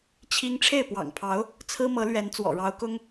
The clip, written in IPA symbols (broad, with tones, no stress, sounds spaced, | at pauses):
t͡ɕʰ i˥ ŋ ʈ͡ʂʰ e˥˩ ɪ̯ p w ɑ̰˨˩ ŋ pʰ ɑ˧˥ ʊ̯ | t͡sʰ ɹ̩˥ m ɤ˧˥ l ɥ ɛ˧˥ n t͡s w ɔ̰˨˩ ɻ ɑ˧˥ ʊ̯ k ʊ˥ ŋ